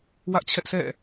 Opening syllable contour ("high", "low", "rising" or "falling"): high